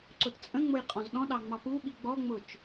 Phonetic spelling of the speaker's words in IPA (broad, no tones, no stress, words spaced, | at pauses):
ǀʊtt͡sʼə̃ŋ͡mʊj qʼɔ̃zɗɔ̃ɗɑ ŋ͡mɑpuɓi ɡ͡bɔŋ͡mʊt͡ʃ